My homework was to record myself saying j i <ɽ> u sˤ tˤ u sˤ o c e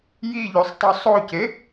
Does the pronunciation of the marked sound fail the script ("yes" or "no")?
yes